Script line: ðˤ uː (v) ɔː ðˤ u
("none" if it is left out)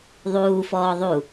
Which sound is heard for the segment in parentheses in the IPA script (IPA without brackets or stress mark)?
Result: f